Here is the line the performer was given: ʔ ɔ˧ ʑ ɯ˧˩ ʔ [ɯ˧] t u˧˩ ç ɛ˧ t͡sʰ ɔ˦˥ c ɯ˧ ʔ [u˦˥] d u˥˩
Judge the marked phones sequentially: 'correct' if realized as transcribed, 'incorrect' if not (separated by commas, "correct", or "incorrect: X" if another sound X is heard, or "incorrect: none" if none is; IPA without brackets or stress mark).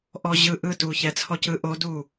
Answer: incorrect: ɯ˥˩, incorrect: o˦˥